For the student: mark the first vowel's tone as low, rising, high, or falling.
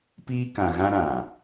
high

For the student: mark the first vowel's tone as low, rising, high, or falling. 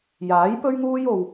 rising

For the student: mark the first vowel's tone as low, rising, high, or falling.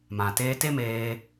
low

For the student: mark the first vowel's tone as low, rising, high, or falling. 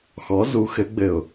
rising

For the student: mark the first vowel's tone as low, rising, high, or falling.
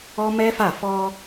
high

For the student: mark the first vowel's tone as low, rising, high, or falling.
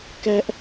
high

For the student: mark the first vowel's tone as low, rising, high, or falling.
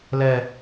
low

